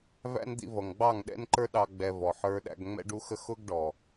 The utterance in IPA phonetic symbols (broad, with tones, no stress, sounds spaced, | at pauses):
v æ̰˦ n d̪ ḭ˧ v ʌ˨ ŋ ɡ͡b ɑ˦˨ ŋ ɗ ɛ̰˦ n ǃ ə˞˦ ɗ ɑ˧ ɡ͡b ɛ˧ v ɔ˨ ħ ə˞˧ ɗ æ̰˧ ɡ ŋ͡m ɛ̰˧ ɖ u˧ x ə˧ x ʊ˦ ɡ ɖ ɔ˨